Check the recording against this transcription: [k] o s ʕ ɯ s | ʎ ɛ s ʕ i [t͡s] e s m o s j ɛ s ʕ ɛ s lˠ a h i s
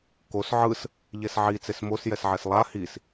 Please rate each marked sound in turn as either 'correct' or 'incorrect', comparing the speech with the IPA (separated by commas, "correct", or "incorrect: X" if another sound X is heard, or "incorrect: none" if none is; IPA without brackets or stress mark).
correct, correct